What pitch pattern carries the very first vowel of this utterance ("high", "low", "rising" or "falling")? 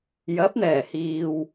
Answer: rising